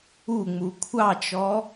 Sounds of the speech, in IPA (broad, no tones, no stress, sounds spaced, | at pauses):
u ŋ͡m u kʷʰ ɑ t͡ʃ ɔ